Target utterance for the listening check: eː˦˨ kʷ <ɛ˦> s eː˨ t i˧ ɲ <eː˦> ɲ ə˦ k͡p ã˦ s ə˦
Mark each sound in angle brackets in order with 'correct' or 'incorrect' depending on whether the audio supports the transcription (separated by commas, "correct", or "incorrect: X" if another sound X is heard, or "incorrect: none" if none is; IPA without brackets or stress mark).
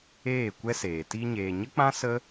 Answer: correct, incorrect: eː˨